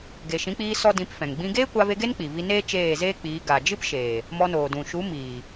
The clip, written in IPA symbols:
ɡ e˨ ʃ ĩ˨˦ k͡p iː˧ s ɔ˦ d ĩ˧ p f ɛ̃˨ ŋ ɡ͡b ĩ˦ ɡ eː˦ kʷ a˧ v e˧ ɡ e˦ n k͡p i˨ v i˧ n eː˦ t͡ʃ eː˦˨ z eː˦ k͡p iː˨˦ ɡ a˨ d͡ʒ ɨ˦ p ʃ eː˨ | m ɔ˧ n oː˨ d ũ˨ ʃ u˨˦ m iː˨

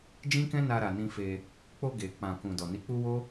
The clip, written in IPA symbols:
d͡ʒ ĩ˦ k ɛ̃˦ n a˧ ɾ a˨ n ĩ˧ f e˧ | k͡p o˧ ɡ e˨ k͡p ã˨ k ũ˨ d ɔ˨ n i˨˦ k͡p u˦ w o˦

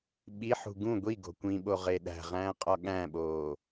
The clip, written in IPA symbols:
ɓ i ħ ṳ ɡ ũ ɡʷ i ɡ o̤ kʷ ĩ ɓ o ʁ e ɗ æ̤ ʁ æ̃ː qʼ ɒ ɠ æ̃ ɓ oː

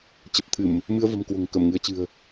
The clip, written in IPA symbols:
t͡ɕ ə˨˩ p̚ t̪ʰ ɨ˧˩˨ m | m ɨ˧ ə̯ v ə̤˨˩ m k w o̤˨˩ ŋ k ə˧˩ m ŋ ɨ˨˦ ə̯ t͡ɕ ɨ̤˨˩ ə̯

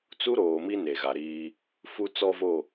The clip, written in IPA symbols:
t͡s u˦ ɾ oː˨ m i˦ n e˨ ɣ a˨ ɾ iː˦ | f u˦ t͡s ɔ˦ v o˦˨

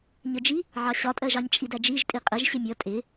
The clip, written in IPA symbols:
ɲ ə d͡ʒ i | ʕ ɑ ɕ ɒ tʼ ɜ ʒ ɑ ɲ t͡ʃʼ i d æ d͡ʒ i ʒ tʼ i qʼ ə ʒ ɕ ɪ mʲ ʌ tʼ ɪ

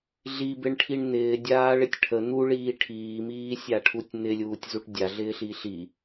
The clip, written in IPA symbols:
ɮ i b ɪ ɳ ʈʰ i ɳ n̪ ɪː dʲ aː ɭ ɪ tʲ ʈʰ ə n̪ u ɭ iː ʈʰ iː m iː sʲ a ʈʰ u tʲ n̪ ɪ lʲ uː tʲ z u ʈ dʲ a ɮ ɪː ɬ i ɬ i

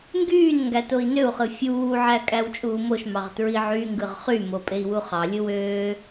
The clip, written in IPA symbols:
ŋ ɡ yː n ŋ ɡ æ t o i̯ n ø u̯ χ ɯ fʲ uː ʕ æ kʼ æ w t͡ʃʼ uː m o ʃ m ɑ ʁ t ɹ i ʕ y ŋ ɡ ɯ ʁ χ y m o pʼ e i̯ w u χ ɑ lʲ ɯ w øː

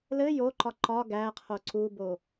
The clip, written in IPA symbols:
l ɘ j o ǃ ɒ ǃ ɒ ɡ æ qʰ o ǀ u b o

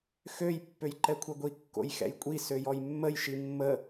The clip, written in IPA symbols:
x ø j pː ø j ǃ ɛ kʷʰ ɛ ɡʷ i kː o̰ j x ɛ̰ j kʷʼ i s ø j ɔ j mː ə j ʃ i mː ə

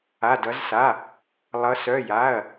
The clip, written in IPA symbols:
a˩˧˩ d ʌ˩˧ z s a˩˧˩ | lˠ ʌ˩˧ s œ˩˧˩ j a˩˧˩ ɐ̯

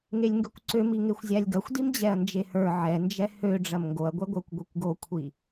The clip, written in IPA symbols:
ŋ e lʲ ŋ ɡ ø kʷ ǀ ø m i ŋ e xʷ zʲ a lʲ ɡ ɐ xʷ d i m d͡ʑ ɛ ɐ̯ n d͡ʒ e h ə˞ ʕ ɛ n d͡ʒ ɛ h ø ɖ͡ʐ ɐ m ŋ ɡ o ɐ̯ ɡʷ ɛ ɡʷ ə˞ kʷ ɡʷ e kʷ ɡ o kʷʰ i

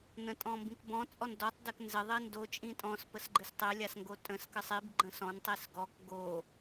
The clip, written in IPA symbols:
n ə̃ tʼ ɔ̃ m b ĩ k b ɔ̃ t͡sʼ ɔ n d ɔ tˤ d ɘ k n z ɘ ðˤ i n d o t͡ʃʼ ĩ tʼ ɔ̃ s p ə s ɡ͡ǃ ɘ s tˤ ɘ lʲ a s ŋ ɡ o tʼ ə̃ s k ə sˤ i b ɡ͡ǃ ə̃ s ɔ̃ n tˤ i s ɡ ɔ k ɡ o

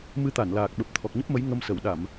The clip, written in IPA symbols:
m ɨ˧ t̪ a˧˩ n l aː˨˩ k̚ ɓ ə˨˩ p̚ t̪ʰ ɔ˨˩ k̚ ɲ ə˦˥ p̚ m ə˨˦ j ŋ ə˧ m s ə˧˩ w ɗ a˧˩˨ m

